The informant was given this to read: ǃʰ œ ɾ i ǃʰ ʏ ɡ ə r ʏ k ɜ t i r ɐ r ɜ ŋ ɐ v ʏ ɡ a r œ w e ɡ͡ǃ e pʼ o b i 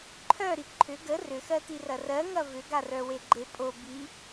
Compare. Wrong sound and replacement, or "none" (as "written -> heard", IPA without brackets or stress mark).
k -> x